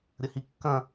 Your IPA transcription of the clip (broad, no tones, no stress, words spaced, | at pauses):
ɾʲəhikːɐ̃